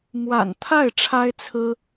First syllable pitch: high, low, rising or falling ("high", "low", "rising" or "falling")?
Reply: low